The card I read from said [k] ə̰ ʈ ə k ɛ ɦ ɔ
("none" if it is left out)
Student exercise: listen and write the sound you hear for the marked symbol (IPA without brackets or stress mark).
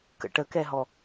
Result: k